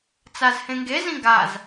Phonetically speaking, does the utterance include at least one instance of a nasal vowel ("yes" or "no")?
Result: yes